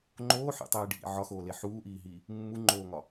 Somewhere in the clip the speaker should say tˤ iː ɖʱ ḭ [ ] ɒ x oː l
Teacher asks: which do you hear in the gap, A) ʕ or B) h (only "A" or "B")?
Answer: A